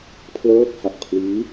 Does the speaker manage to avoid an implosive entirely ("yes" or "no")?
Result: yes